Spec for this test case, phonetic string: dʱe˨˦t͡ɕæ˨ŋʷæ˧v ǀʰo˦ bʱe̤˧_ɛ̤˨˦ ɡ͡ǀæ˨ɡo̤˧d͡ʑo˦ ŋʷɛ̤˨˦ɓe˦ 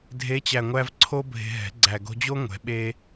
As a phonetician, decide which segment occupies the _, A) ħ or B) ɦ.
B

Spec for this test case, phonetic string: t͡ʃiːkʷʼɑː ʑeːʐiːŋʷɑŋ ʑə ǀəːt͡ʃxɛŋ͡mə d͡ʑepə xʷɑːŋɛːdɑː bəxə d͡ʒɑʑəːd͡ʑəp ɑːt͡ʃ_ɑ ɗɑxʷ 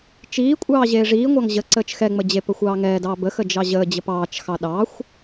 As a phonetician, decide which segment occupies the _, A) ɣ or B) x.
B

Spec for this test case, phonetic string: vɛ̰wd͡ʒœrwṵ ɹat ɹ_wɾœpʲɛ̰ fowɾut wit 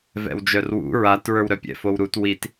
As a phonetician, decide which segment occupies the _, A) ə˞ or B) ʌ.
A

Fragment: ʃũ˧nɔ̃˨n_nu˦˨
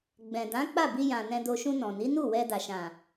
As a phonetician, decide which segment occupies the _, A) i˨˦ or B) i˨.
A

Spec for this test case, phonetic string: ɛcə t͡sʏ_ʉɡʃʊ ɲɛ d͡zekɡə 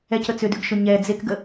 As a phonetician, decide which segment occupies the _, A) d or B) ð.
A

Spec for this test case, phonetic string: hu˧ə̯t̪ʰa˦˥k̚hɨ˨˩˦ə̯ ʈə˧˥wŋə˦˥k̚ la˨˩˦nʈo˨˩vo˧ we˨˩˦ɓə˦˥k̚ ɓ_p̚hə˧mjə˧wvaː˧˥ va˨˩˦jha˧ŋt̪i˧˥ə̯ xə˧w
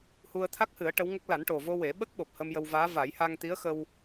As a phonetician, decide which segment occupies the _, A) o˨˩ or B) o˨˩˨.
A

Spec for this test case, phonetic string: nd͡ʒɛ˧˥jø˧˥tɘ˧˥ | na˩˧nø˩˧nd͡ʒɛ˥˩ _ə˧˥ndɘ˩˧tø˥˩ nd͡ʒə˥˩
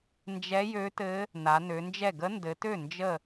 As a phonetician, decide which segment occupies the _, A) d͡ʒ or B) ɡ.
B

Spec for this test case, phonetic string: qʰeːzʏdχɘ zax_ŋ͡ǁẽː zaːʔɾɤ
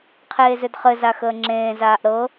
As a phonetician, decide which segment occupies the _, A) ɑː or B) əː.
B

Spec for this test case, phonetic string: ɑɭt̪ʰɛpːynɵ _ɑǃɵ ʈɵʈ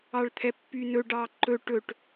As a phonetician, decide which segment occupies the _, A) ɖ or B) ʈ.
A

